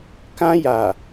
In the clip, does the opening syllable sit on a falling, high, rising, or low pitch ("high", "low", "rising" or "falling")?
high